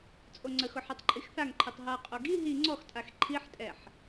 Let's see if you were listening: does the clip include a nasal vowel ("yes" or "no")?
no